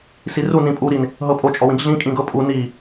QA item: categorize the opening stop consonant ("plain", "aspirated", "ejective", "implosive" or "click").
ejective